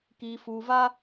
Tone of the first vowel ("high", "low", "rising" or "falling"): low